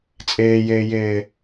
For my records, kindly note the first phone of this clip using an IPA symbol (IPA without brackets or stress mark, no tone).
t͡sʼ